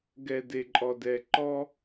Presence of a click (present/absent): present